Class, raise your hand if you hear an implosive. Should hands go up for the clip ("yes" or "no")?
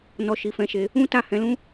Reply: no